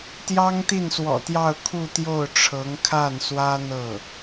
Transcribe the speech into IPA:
t̪jɑ˥ŋt̪i˥˩nswɔ̰˨˩t̪jɑ˥˧ʊ̯ kʰu˥˧t̪jo˥˩ʊ̯ʈ͡ʂʰɤ˧˥ŋ kʰa˥˩nswä˥ n̪ɤ˥˩

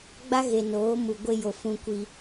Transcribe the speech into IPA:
ɡ͡ba˦ɣe˨noː˨˦ mu˨ɡʷe˦jo˨ fũ˦kʷi˦

